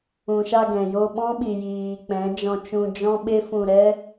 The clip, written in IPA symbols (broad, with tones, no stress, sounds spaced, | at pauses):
ũ˨ ʃ a˧ ɡ ɛ̃˨ j o˧ ɓ ɔ̃˦ ɓ i˨ j iː˨ k͡p ɛ̃˨˦ d͡ʒ ɔ̃˧ t͡ʃ ũ˧ d͡ʒ ɔ̃˦ ɓ e˦ f ũ˧ ɾ ɛ˦